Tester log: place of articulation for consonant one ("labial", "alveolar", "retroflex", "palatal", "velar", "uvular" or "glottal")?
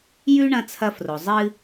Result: palatal